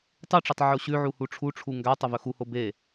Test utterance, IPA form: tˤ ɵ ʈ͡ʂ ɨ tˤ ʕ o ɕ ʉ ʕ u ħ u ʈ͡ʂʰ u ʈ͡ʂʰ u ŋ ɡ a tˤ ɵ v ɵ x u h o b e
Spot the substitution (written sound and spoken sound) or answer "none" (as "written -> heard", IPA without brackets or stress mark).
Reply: ħ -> h